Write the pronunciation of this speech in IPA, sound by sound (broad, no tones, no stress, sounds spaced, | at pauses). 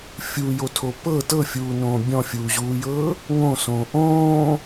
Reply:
fʲ u j o tʰ o p ɤ t ɤ fʲ uː n õː bʲ ɔ̃ fʲ uː ʑ uː j ɤː | ŋ õ s õː ʔ õː